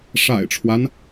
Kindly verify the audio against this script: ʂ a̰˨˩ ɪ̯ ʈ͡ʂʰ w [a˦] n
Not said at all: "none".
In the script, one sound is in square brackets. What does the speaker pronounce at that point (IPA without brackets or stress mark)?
a˦